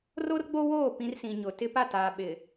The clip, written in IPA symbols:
r o˦ r ɡ͡b o˦ w oː˦˨ p ĩ˦ r s ĩ˨ ɲ ʊ˨ t ɪ˦ p a˦˨ t aː˨ ɓ ɪ˨

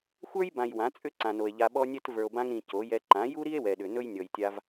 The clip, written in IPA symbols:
xʷ ə˞˦ j b ã˨ j w ã˨˦ t͡sʼ ʏ˦ ǀ ã˨ n o˨ e̯ ʎ a˧ ɓ ɔ˦ nʲ ɛ˦ t v ə˞˨ o̯ b ã˧ ŋ ɾ ĩ˨ c o˨˦ j ɛ˧ ǃ ã˨˦ j u˦ ɾ i˦ e̯ w ɛ˨ ɗ ʏ˨ n ɵ˦ j nʲ ɔ˨ j tʲ a˧ v

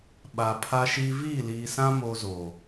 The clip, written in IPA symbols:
ɓ a˨ pʰ a˦ ʃ i˦ v iː˦˨ l iː˨ s ã˦ m o˦ z o˨

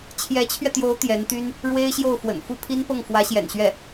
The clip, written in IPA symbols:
t͡ɕʰ j ɛ˧˥ t͡ɕʰ ɥ ɛ˧ t̪ j o˧˥ ʊ̯ t̪ j ɛ˧˥ n t̪ y˥ n | ɻ w e˥ ɪ̯ ɕ j o˥˩ ʊ̯ f w ə̰˨˩ n f u˥˩ pʰ i˥ n p ɤ˥˩ ŋ f w ä˧˥ ɕ j ɛ̰˨˩ n ɕ ɥ ɛ˥˩

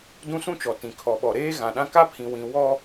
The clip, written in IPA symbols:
d ũ˦ s ũ˦ t͡ʃ ɔ˨ t ĩ˨ kʰ ɔ˨ ɓ ɔ˨ ɾ eː˦ ɣ ã˨ ɗ ã˦ k a˦ pʰ ĩ˨ w ĩ˨ w ɔ˦

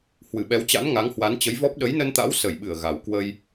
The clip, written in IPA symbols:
h w ɨ˧˩ ɓ ɛ˨˦ w t͡ɕ a̰˧˥ n ŋ a˨˦ ŋ h w a˨˦ n t͡ɕ ə˨˦ j v ɔ˦˥ p̚ ɗ ə˨˦ j n ə˧ n t̪ a̰˧˥ w s ə˧˩ j ɓ ɨ˧˩ ə̯ ɣ a˨˩ w k w ə˧ j

